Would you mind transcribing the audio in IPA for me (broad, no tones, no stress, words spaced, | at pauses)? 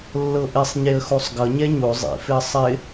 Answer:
lːɤʔɪsˤ ɲeə̯xosˤɡʌ ɲɛɲo zˤḭfɪə̯ sˤɪ